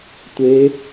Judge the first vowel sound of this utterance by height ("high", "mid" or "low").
mid